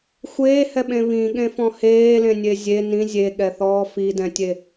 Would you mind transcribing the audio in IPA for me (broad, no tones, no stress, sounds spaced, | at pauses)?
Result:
xʷ eː h ɛ ɓ ẽ β ĩ ɠ ẽ f ɔ̃ h eː l ẽ nʲ e zʲ e n ĩ zʲ e ɠ ɛ θ ɔː f i d ɛ̃ tʲ e